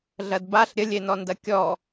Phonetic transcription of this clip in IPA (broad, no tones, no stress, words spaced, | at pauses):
ɮɐdbaɬ ɾʲəlʲenɔndɐ kʲɔ